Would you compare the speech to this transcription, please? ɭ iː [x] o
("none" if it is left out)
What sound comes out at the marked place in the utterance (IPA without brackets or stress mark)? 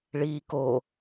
k